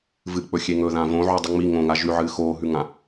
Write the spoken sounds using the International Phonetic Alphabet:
v ɨ k͡p ɵ xʲ e ŋ ɵ ð ã v õ ʕ u dˤ ɨ ŋ͡m i ŋ õ ŋ a ʒ ʉ ʕ ɨː x oː ɦ ʉ ŋ ã

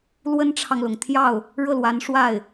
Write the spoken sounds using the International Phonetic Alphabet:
l w ə˥ n ʈ͡ʂʰ ɑ˨ ŋ l ʊ˩ ŋ t̪ʰ j ɑ˥˩ ʊ̯ | ɻ ɤ˥˩ l w a˧˥ n ʂ w a˥˩ ɪ̯

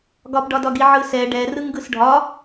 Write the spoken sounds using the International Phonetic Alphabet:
ɡ ɒ p ɖ ɒ d ɒ ɡ i ʕ ɯ s ɛ ɖ ɛ r ɯ ŋ ɡ ɯ s ɖʱ ɒ

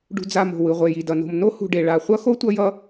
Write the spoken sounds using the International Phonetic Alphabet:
ɖ ṳ˨ d͡z a˨ m o̤˩ w ɯ˩ ʁʷ e˩ j i˩ d ʌ˩ n o̤˨ m n o˥ h ṳ˨ ɖ e˩ ɭ a˨ χʷ ʌ˥ x o˥ tʷ ʌ˦ j ʌ˥

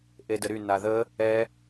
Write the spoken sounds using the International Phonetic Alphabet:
ʔ e d ə ɾ y n a ð ə | ɛ

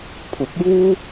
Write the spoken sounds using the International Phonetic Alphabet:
pʰ ʊ˨˥ k̚ j uː˥

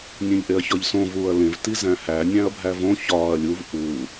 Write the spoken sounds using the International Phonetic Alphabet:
nʲ ẽ ʎ ʔ e ɐ̯ ç ɒ ʎ s õ v uː ɐ̯ l ẽ v t i z æ̃ h æ nʲ æ̃ ɐ̯ bʱ æ v õ ç ɒː ɐ̯ lʲ u v ʔ u

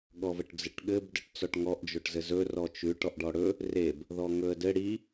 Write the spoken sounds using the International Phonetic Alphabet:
ɠ ɔ v ə ʈ d͡z ɘ ʈ ɠ ɘ b d ɨ ʈ t͡s ɔ ʈ ŋ ɔ ʔ d͡ʒ o ʈ z ɘ z ɵ r ɔ t͡ʃ ʉ ʈ ɔ ʔ ɖ ɔ ɽ ɵ | r e b | ð ɔ ŋ ɵ ə̯ d ɘ ɽ i

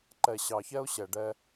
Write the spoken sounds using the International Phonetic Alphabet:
ǃ ɛ˨ ɕ ɑ˨ ç ɛ˦ ʊ̯ ɕ ɛ˧ ɖ ɛ˦

